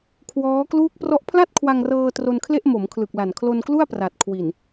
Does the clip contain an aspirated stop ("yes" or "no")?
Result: yes